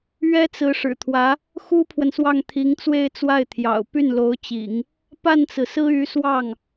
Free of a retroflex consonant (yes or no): no